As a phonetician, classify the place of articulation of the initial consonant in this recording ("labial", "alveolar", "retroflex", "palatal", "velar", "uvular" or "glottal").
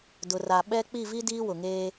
alveolar